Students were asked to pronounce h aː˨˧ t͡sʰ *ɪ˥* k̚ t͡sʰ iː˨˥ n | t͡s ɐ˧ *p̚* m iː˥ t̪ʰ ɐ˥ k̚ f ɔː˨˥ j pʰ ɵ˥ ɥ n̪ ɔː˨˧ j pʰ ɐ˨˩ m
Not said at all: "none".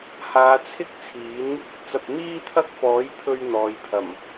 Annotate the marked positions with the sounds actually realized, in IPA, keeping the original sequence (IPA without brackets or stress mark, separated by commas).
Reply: ɪ˥, p̚